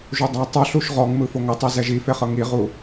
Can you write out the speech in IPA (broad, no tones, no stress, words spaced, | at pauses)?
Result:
ʒudˤa tˤu ɬuʃʁɔŋ mɯfoŋɤtˤi zɛʒifeχɤ ŋiʁu